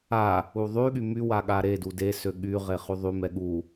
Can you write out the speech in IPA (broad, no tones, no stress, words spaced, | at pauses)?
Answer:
a | uðˤyɠy mywa ɠaɾedu desø ɠyʁe χyðˤymɛ ɠu